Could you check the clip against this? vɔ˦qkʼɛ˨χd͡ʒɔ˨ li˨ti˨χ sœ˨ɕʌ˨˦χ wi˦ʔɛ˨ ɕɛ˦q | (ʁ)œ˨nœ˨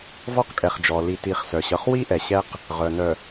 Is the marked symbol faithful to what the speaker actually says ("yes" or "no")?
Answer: yes